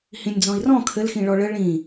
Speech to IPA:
h ĩ nʲ d͡z ɔ̃ i̯ r ɔ̃ kʰ ɘ l x ĩ ɭ ɔ ɭ ə ɭ ĩ

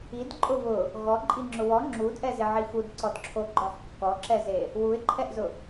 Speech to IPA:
i d ǃʼ ʊ β ʊ | ɣ ɔ ǃʼ i ŋ͡ǁ ʊ w ɔ ŋ͡ǁ u d ʔ ɛ z ɪ ʕ i x u d ǀ ɔ d ǁʰ o ɡ͡ǃ ɔ ħ kː ɔ ǁ ɛ z e | w u ɪ̯ ǃʰ ɛ ʔ z ʊ

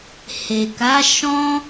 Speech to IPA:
h e˨ k a˨˦ ʃ ɔ̃˦

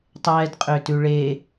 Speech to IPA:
tˤ ɛː d qʼ ø t ʉ ɭ e

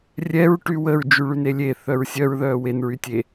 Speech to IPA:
rʲ ɛ ɹ ʈ y w ə ɹ d͡ʒ y ɭ y n e lʲ e θ œ ɹ sʲ œ ɹ ð œː w e n ɹ y tʲ e

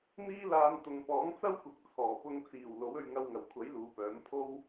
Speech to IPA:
n̪ iː˥ l aː˧ n t̪ ʊ˨ ŋ p ɔː˨˥ ŋ t͡s ɐ˥ w kʷ ɪ˨˥ k̚ t͡sʰ ɔː˨˩ p ʊ˧ ŋ t͡s iː˨˩ w l o˨˥ w ɵ˧ ɥ ŋ ɐ˧ w ŋ ɐ˨˩ w kʷʰ ɐ˨˥ j l uː˨˧ p œː˨˥ m pʰ o˥ w

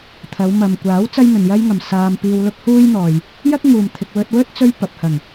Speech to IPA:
t̪ʰ ɐ˨˧ w m ɐ˨ m kʷ aː˨˥ w t͡s ɐ˥ j n̪ ɵ˨ n j ɐ˥ j ŋ ɐ˨ m s aː˧ m p iː˧ w l ʊ˥ k̚ h uː˥ j n̪ ɔː˨ j | j ɐ˥ k̚ ŋ uː˨ m t̪ʰ ɪ˧ k̚ w ɵ˧ t̚ w ɵ˥ t̚ t͡s ɵ˥ ɥ p ɐ˨ p̚ h ɐ˨˩ ŋ

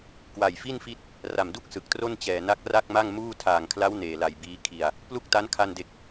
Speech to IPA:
k w a˨˩ j f i˥˩ n f i˦˥ t̚ | r a˨˩ m d u˦˥ k̚ s ɯ˨˩ k̚ t r o˥˩ n t͡ɕ ɛː˨˩ n a˦˥ k̚ r a˥˩ k̚ m a˥˩ ŋ m uː˥˩ tʰ aː˨˩ ŋ kʰ l a˦˥ w n eː˨˩ l a˨˩ j b iː˦˥ kʰ i˧ a̯ | p l u˥˩ k̚ t a˦˥ n kʰ a˧ n d e˨˩ k̚

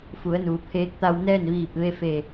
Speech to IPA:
f u˩˧ ə̯ n uː˩ pʰ eː˧˥ k̚ t̪ a˧ w n ɛː˥˨ n ʋ iː˧˩ p̚ ʋ e˥˨ f e˧˩

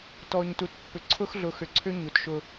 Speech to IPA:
t ɔ˨ ɲ t u˨ t pː ʏ˨ ǀʰ ʊ˦ x ɮ ʊ˨ x ʏ˨ ǀʰ ʏ˦ ɲ u˨ t ʃ ʊ˦

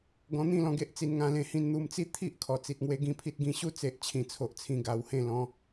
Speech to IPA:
ɡ ɔ̃˧ n̪ ĩ˥˧ l ɔ̃˧ ɡ e˦ ʔ t͡s i˧ n ŋ ã˧ l ẽ˧ h ĩ˧ n n̪ u˧ m t͡s i˥˧ t̪ʰ i˦ ʔ kʰ ɔ˨˩ t͡s i˨ t̚ ŋ w e˦ ɡ ĩ˦ pʰ i˦ t̚ ɡ ĩ˧ ɕ u˥˧ t͡s e˨ ʔ t͡ɕʰ ĩ˨˩ t͡sʰ o˨ ʔ t͡sʰ ĩ˨˩ ɡ a˨˩ w h ẽ˧ l ɔ̃˨˦

